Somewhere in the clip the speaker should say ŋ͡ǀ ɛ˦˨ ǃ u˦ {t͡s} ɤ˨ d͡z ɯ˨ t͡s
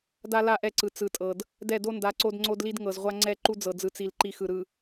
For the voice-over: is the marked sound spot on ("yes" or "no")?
no